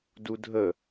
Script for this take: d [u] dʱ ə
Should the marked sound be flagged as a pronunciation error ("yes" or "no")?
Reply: no